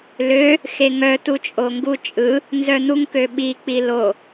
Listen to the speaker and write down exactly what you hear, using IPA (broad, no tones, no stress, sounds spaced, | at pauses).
l ø | x e ŋ œ t u t͡ʃʼ o ŋ ɡ u t͡ʃʼ ɯ | n z œ n̪ u ŋ k ø ɓ i k͡p i l o